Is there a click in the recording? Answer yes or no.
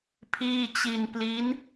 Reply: no